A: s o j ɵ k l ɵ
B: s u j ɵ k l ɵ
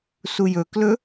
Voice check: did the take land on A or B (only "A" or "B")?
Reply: B